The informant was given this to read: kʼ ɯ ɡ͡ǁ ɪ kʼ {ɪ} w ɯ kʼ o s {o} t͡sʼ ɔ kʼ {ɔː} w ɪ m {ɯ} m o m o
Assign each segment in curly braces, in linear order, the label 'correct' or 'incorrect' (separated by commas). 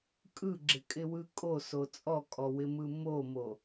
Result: correct, correct, incorrect, correct